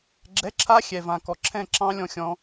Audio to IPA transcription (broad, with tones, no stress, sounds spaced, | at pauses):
ɡ͡ǁ ɛ˧˥˧ ǁʰ a˦˥ xʲ ɛ˨˩ v ã˨˩ k ɔ˨˩ ǁʰ ɛ̃˥˧ ǁ ɑ̃˦˥ lʲ ɔ̃˧ xʲ ɔ̃˧